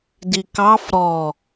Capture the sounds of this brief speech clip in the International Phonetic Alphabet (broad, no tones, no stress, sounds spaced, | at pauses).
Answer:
d i k ɑ f ɾ ɔ